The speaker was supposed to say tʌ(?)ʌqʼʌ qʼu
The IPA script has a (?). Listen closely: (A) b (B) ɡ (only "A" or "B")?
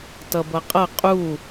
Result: A